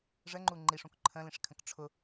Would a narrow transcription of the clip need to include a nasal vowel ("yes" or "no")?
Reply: yes